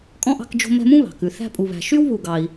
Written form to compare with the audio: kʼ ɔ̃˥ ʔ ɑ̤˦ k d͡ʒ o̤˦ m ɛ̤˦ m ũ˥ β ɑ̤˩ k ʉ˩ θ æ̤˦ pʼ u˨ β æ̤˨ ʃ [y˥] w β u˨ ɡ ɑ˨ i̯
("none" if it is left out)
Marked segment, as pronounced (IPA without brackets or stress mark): y˥